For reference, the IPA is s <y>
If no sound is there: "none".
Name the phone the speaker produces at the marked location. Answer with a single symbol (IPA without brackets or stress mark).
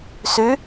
y